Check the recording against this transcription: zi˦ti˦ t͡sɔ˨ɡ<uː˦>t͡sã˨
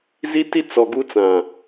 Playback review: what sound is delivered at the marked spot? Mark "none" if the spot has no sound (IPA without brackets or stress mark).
u˦